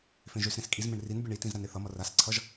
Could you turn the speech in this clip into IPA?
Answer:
f ẽ ʒ ø s ɾ ẽ s kʼ i z m ẽ ɳ r i n bʲ e ɳ i t ĩ z ɾ a n e θ ʌ m ʌ r a s ǀʰ ʌ ʒ

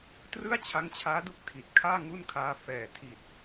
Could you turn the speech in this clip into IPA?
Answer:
t r ɯ˥˩ a̯ t͡ɕʰ a˦˥ ŋ t͡ɕʰ aː˦˥ d u˦˥ k̚ tʰ i˨˩ t̚ kʰ aː˥˩ ŋ u˥˩ n kʰ aː˦˥ f ɛː˨˩ tʰ i˨˩ t̚

